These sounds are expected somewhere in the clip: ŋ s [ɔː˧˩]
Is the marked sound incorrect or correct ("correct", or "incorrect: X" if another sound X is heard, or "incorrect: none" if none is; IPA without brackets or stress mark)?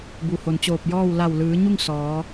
incorrect: ɔː˩˧